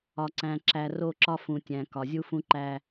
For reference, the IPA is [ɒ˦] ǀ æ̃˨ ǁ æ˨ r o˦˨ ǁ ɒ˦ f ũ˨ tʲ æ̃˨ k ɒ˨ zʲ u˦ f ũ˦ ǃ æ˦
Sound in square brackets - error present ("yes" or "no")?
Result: yes